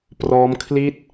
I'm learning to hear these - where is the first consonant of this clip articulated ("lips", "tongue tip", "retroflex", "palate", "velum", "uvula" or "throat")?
lips